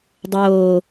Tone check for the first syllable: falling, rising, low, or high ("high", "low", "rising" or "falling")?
low